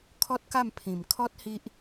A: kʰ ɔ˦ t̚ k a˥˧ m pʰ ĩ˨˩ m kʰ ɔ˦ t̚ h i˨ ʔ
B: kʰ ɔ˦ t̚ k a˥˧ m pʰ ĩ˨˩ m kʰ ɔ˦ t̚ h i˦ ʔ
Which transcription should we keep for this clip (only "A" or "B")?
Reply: B